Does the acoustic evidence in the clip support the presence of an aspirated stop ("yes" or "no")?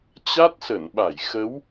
no